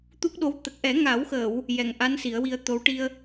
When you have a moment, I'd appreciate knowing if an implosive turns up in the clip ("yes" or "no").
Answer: yes